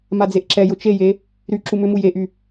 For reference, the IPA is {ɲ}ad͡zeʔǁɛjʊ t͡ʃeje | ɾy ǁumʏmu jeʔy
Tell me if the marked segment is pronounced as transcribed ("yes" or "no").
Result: no